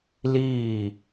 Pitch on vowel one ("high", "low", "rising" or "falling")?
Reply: falling